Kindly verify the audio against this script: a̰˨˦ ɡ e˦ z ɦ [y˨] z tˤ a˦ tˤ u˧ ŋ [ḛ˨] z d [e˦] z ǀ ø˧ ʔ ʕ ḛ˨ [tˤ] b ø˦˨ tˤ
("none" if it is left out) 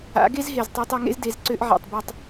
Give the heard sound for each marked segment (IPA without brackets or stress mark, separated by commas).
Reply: e˨, ḛ˦, e˨˦, tˤ